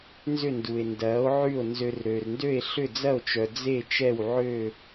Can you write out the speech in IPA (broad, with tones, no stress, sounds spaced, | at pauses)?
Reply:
n z ʏ˥˩ n d u˩ e̯ n d ɐː˩˥ o̯ ʕ y˥˩ o̯ n z ø˧ r ɾ ø˩ r n d ø˥˩ e̯ ɬ ʏ˥˩ d͡z ɐ˥˩ o̯ t͡ʃ œ˩ d͡z e˥˩ t͡ʃ ɛ˥˩ w ʕ ø˥˩